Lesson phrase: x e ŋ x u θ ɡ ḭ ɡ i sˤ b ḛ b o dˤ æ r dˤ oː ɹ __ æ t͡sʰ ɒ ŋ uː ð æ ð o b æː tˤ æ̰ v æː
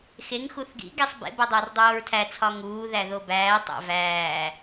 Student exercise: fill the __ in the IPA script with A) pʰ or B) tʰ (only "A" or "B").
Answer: B